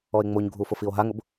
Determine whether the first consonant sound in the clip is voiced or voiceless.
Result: voiced